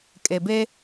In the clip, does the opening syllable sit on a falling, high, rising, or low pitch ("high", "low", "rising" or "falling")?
low